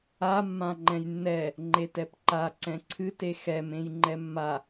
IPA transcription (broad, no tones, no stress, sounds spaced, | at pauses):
a mː ã ŋ͡ǃ ɛ̃ j nː ɛ | ŋ͡ǃ e t ɛ p ǃ a ǀ ɛ̃ ǀʰ ɨ t e x ɛ m ẽ j ŋ͡ǃ ɛ mː a